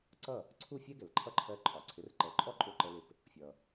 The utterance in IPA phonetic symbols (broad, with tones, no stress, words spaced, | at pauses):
ǀʌ˥˩ | ǀʰu˥˩ fʲɛ˥ɡɛ˩l ǃʰʌ˥˩ǃʰɜ˧ǃʼɒ˩ ǀʰɪ˩˥rǃɜ˩˥ǃʼɔ˥ ǃʼʊ˥˩ǃə˧lɪ˧p | fʲʌ˩